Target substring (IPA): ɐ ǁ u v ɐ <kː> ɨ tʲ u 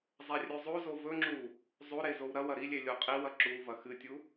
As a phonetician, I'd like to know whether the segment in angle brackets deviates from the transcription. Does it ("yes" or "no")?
yes